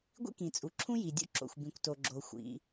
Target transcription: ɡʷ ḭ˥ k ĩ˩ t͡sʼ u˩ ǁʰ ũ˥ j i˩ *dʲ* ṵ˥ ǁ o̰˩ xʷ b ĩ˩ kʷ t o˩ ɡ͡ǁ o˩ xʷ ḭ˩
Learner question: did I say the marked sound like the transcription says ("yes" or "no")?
yes